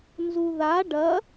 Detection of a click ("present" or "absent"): absent